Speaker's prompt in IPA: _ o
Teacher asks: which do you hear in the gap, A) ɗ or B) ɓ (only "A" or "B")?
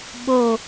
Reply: B